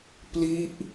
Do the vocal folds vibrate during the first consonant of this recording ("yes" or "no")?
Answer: no